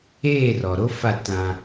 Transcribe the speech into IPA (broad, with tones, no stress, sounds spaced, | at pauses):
eː˦˨ r ɔ˨ ɾ o˦ f a˦˨ t ã˦